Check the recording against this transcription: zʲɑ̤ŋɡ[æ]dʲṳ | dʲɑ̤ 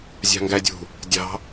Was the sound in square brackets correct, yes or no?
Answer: yes